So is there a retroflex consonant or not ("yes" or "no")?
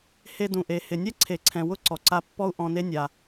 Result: no